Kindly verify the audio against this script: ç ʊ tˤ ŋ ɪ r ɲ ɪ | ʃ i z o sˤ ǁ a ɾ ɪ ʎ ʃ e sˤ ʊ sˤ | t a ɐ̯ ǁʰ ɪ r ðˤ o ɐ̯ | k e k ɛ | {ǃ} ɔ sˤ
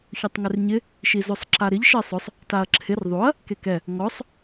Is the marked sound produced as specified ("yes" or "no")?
no